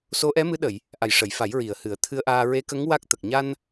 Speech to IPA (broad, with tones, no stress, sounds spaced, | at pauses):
s o˧˥ ʔ ɛ˧˥ m ɨ˧˥ ɗ ə˨˩˨ j | ʔ a˨˩ j ʂ ə˨˩˨ j f a˨˩˦ j ɹ i˨˩ ə̯ h ɨ˨˩˦ ə̯ t̪ʰ ɨ˧ ə̯ ʔ aː˧ ɹ e˧˥ k ə˧˥ ŋ w a˦˥ k̚ t̪ ə˨˩ k̚ ɲ a˧ n